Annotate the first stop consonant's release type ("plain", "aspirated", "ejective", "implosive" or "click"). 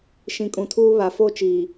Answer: ejective